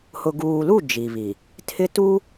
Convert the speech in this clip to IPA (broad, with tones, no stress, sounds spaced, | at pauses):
h ʊ˨ ɡ uː˨ l u˦˨ d͡ʒ i˨ β i˨ | tʰ ɪ˦ t u˦